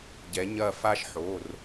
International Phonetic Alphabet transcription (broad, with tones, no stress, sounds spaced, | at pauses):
ɟ ɛ˩˧ ɲ ɐ˦˨ f a˥ ʃ ħ o˩˧˩ r